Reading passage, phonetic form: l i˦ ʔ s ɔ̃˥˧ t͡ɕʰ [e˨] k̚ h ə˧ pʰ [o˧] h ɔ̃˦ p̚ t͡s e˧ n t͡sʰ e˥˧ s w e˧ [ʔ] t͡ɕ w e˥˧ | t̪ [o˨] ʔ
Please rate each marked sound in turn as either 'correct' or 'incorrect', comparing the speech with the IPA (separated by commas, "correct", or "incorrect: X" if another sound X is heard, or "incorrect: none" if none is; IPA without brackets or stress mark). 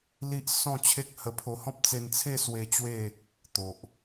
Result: incorrect: e˦, correct, incorrect: none, correct